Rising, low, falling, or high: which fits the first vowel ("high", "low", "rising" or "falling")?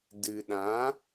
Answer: low